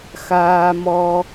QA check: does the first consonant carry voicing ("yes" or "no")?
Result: no